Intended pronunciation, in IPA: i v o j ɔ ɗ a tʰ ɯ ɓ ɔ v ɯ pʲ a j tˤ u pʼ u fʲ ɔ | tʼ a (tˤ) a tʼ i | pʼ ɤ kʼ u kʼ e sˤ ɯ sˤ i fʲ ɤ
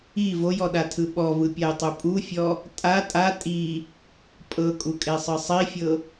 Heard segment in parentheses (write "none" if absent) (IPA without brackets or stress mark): tʼ